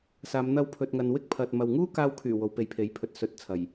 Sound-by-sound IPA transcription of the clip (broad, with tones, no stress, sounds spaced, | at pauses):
s aː˨˧ m n̪ ɐ˧ w pʰ ɵ˨ t̚ ŋ ɐ˨ n w ɪ˥ k̚ pʰ ɐ˨ t̚ m ɐ˨ w ŋ uː˥ k aː˧ w kʰ yː˨˩ w o˨˧ w p e˨˧ j pʰ e˨˥ j pʰ ɵ˨˥ t̚ s ɵ˨˥ t̚ t͡sʰ ɐ˨˩ j